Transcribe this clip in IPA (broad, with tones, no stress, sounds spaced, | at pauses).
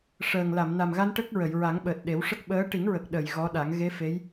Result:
ʂ əː˨˩ ŋ l a˨˩˨ m n a˨˩ m ɣ a˧ n ʈ ə˦˥ k̚ ɹ ə˨˩˨ j ɹ a˨˩˦ ŋ ɓ əː˨˩ t̚ ɗ e˨˩˦ w ʂ ə˦˥ k̚ ɓ əː˧˥ ʈ i˨˩˦ ŋ ɹ ə˨˩ k̚ ɗ ə˨˩˨ j ɣ ɔ˧˥ ɗ a˨˩˦ ŋ ɣ e˧˥ f e˧˥ j